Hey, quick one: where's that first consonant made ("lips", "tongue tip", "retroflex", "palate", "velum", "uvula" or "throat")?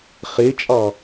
uvula